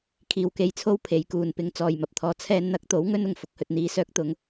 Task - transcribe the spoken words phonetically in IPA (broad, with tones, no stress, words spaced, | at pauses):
kʰiː˨˧wke˧jt͡sʰo˥w pʰe˨˧jkuː˨npɪ˨˥ŋ t͡sɔː˨jmɐ˨p̚t̪ʰɔː˧ t͡sʰɛː˧nn̪ɐ˨˥k̚t̪o˨˥w ŋɵ˥nʊ˨˩ŋ fʊ˧k̚hɵ˨t̚n̪iː˨˧ sœː˥k̚t̪ʊ˨˥ŋ